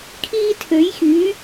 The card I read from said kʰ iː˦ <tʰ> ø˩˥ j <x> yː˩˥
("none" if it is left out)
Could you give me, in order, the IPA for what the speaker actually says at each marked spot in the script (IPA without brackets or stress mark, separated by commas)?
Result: tʰ, x